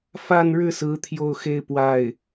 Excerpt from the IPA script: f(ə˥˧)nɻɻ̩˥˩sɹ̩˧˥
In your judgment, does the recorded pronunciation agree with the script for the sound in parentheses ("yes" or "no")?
no